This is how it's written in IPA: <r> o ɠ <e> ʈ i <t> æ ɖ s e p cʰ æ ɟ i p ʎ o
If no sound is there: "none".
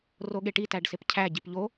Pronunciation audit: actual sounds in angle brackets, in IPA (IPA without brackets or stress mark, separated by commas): r, e, t